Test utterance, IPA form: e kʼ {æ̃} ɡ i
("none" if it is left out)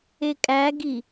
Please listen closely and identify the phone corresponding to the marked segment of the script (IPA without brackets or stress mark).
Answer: æ